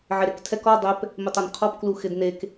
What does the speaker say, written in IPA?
ʕɪɾektʰɛk ɔ dˤɛp | mɪtˤanqʰɔp kluxɪdnek

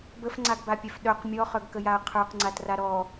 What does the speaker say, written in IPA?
bəfŋ͡ǀaɡbapʲœf ɗœq mʲɔχœɡkəjaɐ̯ qʰə˞qŋ͡ǀatra ɾɔ

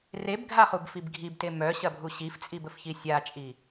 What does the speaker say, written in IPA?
rebɡʱaχubfib ɡʱibte mœɕɐbʱu ɕift͡sʼibəfçi sʲat͡ʃʼi

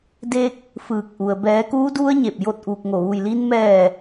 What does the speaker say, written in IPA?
de˧k̚ | fɯː˧˩k̚ʔu˩ə̯ bɛː˩˧kuː˧˥du˧˥ə̯ ɲe˧˩p̚jo˥˨t̚ʔuː˧k̚ŋo˧˩ ʋu˧˩jliː˧nmɛː˧˩

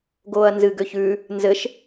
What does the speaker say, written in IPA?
ɡoːɐ̯nzɨ ɡøçʉː | nzɘʃ

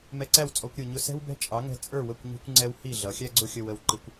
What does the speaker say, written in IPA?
mɛ˧ǀæ˥˩wt͡sʼɔ˧kʷ ɾʲə˞˩ɲʊ˧ sɛ̤˥wbɛ̤˥ t͡ʃʼɑ˩˥ŋɛ̤˧ t͡sʼə˞˥˩wə˥˩kʷ ɲi̤˧kʷŋ͡ǀɛ˧w hi˥˩ɮʌ˩˥ xʲæ˥ɡ͡ǀʊ˥xʲə˧wə˩˥w ǃi˩˥kʷ

